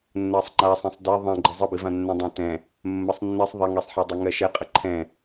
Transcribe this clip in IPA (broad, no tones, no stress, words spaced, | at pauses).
nːɜsˤŋ͡ǃasˤɛ̃sˤ dɛ ðˤɛ̃ɡ͡ǃə zˤəbivã nːɛ̃dˤãtɛ̃ | mːəsˤnːisˤ ðˤaŋɛsˤħadˤɛ ŋɜʃɛqʼə ǃʰɛ̃